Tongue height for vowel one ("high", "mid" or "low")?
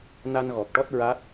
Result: low